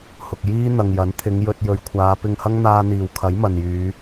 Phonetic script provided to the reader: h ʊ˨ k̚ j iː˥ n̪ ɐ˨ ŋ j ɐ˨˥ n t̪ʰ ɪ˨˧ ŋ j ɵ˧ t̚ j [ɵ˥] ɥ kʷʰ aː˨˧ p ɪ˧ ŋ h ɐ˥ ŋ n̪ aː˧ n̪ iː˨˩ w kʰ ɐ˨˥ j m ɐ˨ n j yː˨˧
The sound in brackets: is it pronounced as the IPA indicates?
no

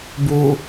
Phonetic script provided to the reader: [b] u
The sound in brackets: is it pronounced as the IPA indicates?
yes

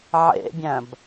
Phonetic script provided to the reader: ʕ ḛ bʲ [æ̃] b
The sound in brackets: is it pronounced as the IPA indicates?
yes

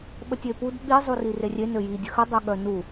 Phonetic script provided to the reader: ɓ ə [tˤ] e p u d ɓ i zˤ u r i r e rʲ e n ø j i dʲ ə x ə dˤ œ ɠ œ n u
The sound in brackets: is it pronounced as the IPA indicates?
no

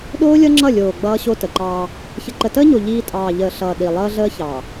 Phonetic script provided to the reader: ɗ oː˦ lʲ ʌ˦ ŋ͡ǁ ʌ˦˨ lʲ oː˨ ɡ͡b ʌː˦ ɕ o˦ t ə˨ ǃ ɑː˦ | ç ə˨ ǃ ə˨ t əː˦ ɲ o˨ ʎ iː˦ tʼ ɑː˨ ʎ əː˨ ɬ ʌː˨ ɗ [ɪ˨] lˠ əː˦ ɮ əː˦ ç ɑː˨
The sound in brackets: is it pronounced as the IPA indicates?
no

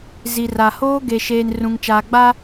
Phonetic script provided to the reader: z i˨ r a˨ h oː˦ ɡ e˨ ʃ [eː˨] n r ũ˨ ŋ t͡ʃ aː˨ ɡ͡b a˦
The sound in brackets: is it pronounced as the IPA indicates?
yes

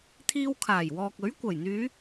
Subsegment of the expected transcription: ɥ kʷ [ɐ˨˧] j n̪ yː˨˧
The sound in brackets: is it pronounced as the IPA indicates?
no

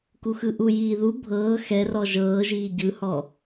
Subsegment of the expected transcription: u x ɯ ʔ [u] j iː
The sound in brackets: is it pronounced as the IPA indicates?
yes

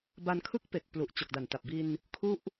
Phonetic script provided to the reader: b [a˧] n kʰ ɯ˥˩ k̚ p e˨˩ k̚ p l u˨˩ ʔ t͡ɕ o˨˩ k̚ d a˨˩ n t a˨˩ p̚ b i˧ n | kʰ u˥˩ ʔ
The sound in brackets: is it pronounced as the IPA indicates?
yes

